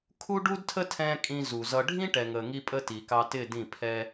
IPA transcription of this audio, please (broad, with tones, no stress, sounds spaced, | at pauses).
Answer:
kʰ u˦ ɖ u˦ d tʰ ə˦ tʰ ɛ̃˧ kʼ ĩ˧ z u˨ z ʌ˧ ɖʱ ĩ˦ ʈ ɛ˨ ŋ ə˨ ŋ i˧ pʼ ə˧ t i˨ k ɑ˧ t ɪ˦˨ d ĩ˦˨ pʰ ɛ˦